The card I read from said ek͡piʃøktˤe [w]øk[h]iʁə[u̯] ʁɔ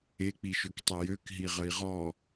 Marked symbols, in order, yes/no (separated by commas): no, no, no